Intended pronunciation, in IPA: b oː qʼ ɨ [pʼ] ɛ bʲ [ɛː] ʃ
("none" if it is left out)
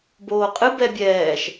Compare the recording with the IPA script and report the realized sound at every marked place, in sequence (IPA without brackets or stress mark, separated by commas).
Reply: b, ɛː